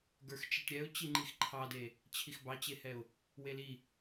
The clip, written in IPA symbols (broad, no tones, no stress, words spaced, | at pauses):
ɡə˞xt͡ʃeʈɾʲɛʊ̯ t͡ɕiŋ͡ǃixǃʰɑde | t͡ɕʰixbɑt͡ɕehɛʊ̯ | weli